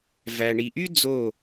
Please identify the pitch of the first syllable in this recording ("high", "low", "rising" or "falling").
low